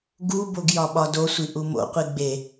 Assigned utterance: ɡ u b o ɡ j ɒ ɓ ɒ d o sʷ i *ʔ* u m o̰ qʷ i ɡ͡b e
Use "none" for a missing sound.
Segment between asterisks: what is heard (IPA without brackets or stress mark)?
ʔ